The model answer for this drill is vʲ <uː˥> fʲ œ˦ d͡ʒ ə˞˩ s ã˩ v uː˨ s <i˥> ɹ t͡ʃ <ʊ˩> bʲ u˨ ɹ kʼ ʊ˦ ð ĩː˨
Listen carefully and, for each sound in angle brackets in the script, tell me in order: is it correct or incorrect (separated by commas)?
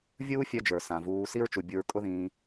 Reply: correct, correct, incorrect